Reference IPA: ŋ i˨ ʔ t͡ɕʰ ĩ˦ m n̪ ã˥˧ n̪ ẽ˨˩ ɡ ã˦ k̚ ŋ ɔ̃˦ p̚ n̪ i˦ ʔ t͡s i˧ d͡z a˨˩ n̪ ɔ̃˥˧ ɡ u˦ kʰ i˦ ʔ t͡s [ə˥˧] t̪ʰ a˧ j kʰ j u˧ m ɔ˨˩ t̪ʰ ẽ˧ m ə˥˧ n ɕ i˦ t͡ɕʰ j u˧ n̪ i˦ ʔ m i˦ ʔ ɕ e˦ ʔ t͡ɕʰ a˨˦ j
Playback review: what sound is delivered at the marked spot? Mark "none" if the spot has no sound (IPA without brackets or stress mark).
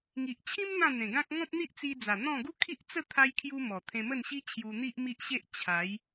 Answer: ə˥˧